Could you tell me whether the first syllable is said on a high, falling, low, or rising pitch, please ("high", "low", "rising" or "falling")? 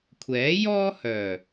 rising